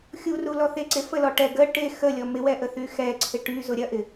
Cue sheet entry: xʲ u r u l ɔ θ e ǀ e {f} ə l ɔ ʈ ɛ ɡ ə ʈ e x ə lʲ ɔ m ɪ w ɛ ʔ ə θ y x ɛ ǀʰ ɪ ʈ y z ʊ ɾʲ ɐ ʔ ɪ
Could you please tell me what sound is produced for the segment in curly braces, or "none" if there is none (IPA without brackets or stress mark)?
f